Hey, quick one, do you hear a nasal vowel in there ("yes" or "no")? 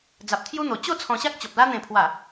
yes